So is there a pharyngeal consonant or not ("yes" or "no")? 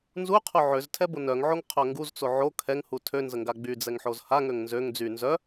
yes